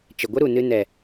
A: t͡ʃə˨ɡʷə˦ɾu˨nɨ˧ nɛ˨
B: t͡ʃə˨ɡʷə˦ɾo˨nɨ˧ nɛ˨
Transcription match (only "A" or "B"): A